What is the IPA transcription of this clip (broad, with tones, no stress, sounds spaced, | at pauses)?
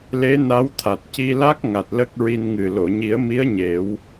l e˧˥ n a˧˥ w t̪ʰ a˨˩ t̚ c i˧ l a˦˥ k̚ ŋ a˨˩ t̚ l ə˦˥ k̚ ɹ i˧ n ŋ ɨ˨˩ l o˨˩˨ ɲ i˨˩˦ ə̯ m i˧˥ ə̯ ɲ e˨˩˦ w